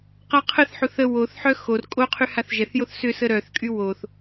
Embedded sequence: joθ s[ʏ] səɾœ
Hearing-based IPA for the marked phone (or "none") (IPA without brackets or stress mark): ʏ